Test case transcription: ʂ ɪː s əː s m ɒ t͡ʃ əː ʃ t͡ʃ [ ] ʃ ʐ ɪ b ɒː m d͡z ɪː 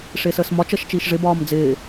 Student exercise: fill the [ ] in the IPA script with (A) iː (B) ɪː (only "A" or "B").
A